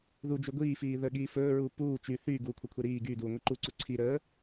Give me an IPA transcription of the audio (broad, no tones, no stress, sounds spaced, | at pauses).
ð u d͡ʒ y ɡʷ iː f iː ð ə ɠ iː f ɵː ɹ uː p uː t͡ʃ y θ yː ɡ uː kʷʰ ə kʷʰ e ɾ iː ɡ yː d uː ŋʷ i ǃ u ǀ u ǀʰ i ɾ əː